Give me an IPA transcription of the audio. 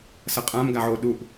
sʌqʼãm ɡaʕo ɗuʔ

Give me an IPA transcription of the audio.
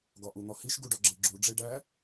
ɡɒʔun̪ɒhiʃ ɡuɖɒɡ͡ǁeɡ͡ǁu ɖ͡ʐeɖæ

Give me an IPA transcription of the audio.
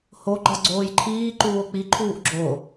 hoɡ͡ǃɒ ɡ͡ǀoːjǃʰiː ǃuːo̯k͡piǃʰuːʔ ɡ͡ǁo

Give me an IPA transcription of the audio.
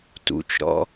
tṵt͡ʃɾɔ̰

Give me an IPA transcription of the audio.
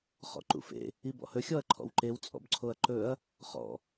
χɔ̰ǃṵfḛ | ibɔ̰hɵ xʲɔɐ̯ǃʰɔ̰wǃew t͡sʼɔ̰bǀʰoɐ̯ǃɵɐ̯ | χɔ̰

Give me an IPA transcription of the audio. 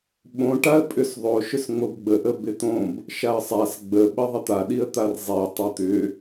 ɓõ ʈaə̯pʼʏsðˤo ʃʏsŋ͡mobɡ͡bə ʔəbɪt̪õb | ʃaə̯sˤas ɡ͡bə ɓəðˤɪt̪a ɗiə̯t̪arzˤi tˤot̪ʏ

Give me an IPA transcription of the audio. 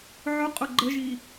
ʕʊqʼʊ ɡ͡ǃəʒi

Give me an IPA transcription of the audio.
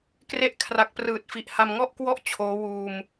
kre˦˥ʔkʰra˨˩k̚prɯː˨˩t̚fi˨˩ʔ ha˧mŋɔ˥˩ʔkwɔ˥˩ʔ t͡ɕʰoː˦˥ wuː˧m

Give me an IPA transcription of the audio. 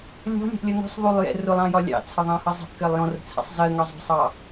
lʲɔ̤lʲɛ̤ʔlʲʌ nɔ̤sˤ ðˤulˠjɛ̰ rʊlˠɑ̃jɒ lʲɑ̰t͡sʰəðˤɑ̃hʌ zˤə̤ʔkɜlˠ jɔ̃rə̤t͡sʰɛ̰sˤ zɜŋɒzˤṳsˤɑ

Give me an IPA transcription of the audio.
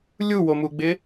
lʲuwomuɡ͡bɪ

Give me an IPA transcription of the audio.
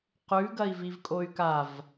qʉɡɐi̯vivkʼoy̯ kav

